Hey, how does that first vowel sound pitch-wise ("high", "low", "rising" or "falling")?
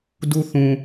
low